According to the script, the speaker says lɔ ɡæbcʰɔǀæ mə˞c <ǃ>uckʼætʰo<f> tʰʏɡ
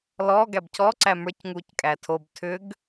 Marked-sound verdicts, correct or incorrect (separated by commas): incorrect, incorrect